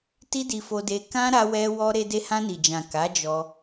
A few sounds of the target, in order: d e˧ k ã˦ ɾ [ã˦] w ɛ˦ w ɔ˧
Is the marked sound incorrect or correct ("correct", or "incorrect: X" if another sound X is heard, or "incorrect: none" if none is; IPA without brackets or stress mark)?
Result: incorrect: a˦